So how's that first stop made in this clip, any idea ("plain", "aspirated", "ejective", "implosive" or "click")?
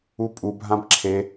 ejective